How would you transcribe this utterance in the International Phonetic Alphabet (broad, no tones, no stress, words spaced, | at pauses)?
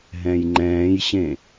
ɦɛ̃jŋ͡ǃɛ̃ːjɕẽ